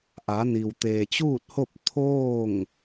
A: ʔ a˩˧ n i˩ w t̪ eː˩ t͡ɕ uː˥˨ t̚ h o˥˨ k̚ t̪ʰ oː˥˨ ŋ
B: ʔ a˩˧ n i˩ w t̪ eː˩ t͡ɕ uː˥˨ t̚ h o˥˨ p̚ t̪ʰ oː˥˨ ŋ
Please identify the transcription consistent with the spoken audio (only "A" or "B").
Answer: B